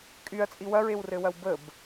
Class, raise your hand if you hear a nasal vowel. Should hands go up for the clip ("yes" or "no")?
no